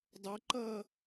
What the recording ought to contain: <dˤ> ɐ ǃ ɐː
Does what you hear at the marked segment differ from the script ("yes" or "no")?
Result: no